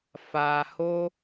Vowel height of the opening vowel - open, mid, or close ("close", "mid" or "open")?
open